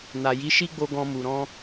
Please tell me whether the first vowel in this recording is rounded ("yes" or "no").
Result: no